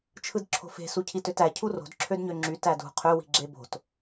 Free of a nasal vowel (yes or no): yes